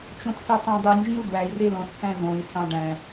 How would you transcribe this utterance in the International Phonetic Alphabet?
t͡ʃ õ t s ɯ tˤ õ dˤ y nʲ ʒ ĩ u̯ d w æ i̯ r e l õ s θ æ̃ z õ i̯ s ɑ̃ ɖ æ̃

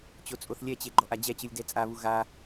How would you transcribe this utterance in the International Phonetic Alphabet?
t͡ɕ o t͡sʼ o θ lʲ ɛ t͡ɕ e ɡ͡ǃ ɔ ʔ a d͡ʑ ɛ t͡ɕ ɯ lʲ d ɛ t͡sʼ a β u ɣ a

